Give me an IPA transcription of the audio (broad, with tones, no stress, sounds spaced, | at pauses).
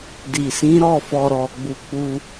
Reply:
d i˨ s ĩ˨˦ ɾ ɔ˦˨ f ɔ˨ ɾ ɔ˨ ɡ͡b u˧ k͡p u˦